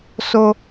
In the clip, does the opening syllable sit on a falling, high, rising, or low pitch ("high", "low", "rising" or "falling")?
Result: high